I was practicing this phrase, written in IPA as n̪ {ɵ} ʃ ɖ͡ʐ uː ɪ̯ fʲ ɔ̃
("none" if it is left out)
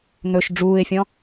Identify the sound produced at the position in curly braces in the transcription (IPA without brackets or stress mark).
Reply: ɵ